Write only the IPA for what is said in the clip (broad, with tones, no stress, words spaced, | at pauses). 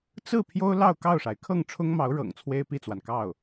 t͡sɹ̩˥˩ pʰjo˥ʊ̯lɑ˥˧ʊ̯ kɑ˥˩ʊ̯ʂa˩ɪ̯ kʰɤ˥˩ŋʈ͡ʂʰʊ˥ŋmɑ˧˥ʊ̯ɻɤ̰˨˩ŋ t͡sʰwe˥ɪ̯pi˥˩t͡swa˩n kɑ˥˩ʊ̯